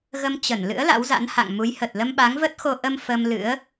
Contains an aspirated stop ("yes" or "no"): no